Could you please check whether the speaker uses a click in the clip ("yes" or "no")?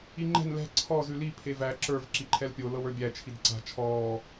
yes